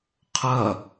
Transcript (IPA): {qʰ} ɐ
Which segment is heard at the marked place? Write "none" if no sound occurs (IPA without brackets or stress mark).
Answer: qʰ